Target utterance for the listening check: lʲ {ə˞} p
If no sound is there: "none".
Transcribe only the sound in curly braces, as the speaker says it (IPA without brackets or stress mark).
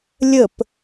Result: ə